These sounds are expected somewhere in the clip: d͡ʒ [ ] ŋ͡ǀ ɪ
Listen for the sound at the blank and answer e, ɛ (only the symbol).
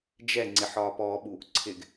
ɛ